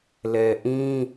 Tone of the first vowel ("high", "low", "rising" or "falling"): low